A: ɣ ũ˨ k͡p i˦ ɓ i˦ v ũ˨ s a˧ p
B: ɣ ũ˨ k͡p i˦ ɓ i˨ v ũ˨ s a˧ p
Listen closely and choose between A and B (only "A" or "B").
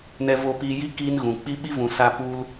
A